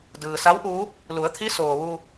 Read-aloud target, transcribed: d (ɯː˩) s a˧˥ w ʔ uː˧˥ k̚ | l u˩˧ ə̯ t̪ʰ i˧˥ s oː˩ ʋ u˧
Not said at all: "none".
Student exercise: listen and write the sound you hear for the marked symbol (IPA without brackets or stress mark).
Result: ɯː˩